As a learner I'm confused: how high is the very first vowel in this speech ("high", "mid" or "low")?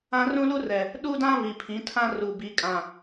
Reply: low